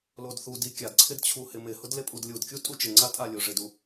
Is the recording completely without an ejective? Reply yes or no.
no